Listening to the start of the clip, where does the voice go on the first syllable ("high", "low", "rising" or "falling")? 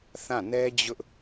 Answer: falling